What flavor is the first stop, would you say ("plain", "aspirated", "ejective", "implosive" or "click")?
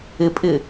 ejective